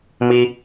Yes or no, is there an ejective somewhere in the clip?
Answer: no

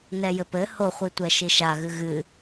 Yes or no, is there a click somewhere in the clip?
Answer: no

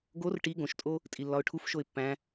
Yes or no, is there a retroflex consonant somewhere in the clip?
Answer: yes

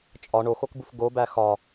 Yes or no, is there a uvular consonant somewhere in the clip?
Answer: no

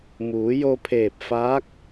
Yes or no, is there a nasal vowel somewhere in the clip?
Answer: no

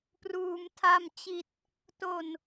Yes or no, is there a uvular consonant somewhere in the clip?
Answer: no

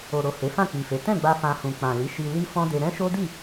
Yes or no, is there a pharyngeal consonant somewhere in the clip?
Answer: no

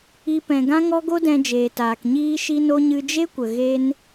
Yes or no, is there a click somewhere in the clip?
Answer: no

